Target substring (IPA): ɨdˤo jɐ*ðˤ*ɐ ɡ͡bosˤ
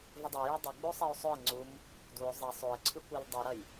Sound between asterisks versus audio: incorrect: dˤ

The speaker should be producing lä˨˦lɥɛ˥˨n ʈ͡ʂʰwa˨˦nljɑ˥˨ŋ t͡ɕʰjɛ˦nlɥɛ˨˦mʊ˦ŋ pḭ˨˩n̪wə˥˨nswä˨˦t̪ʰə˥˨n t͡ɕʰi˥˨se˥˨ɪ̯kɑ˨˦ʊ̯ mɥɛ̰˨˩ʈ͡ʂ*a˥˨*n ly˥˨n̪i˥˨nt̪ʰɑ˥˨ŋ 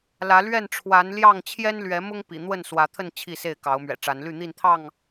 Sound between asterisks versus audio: incorrect: a˨˦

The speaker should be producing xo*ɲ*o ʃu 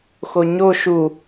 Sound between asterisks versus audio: correct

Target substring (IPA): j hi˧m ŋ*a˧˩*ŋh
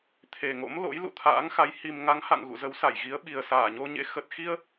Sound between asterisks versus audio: incorrect: a˨˦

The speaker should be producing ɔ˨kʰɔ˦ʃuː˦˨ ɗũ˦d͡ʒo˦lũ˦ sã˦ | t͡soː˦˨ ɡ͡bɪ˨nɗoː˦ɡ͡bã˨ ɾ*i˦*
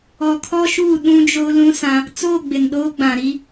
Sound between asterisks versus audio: correct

